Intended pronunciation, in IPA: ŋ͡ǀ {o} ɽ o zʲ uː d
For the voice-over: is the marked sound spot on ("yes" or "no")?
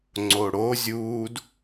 yes